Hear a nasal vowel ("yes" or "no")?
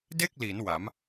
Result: no